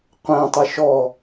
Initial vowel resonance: nasal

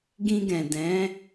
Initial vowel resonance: nasal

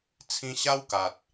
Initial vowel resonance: nasal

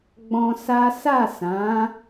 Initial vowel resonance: nasal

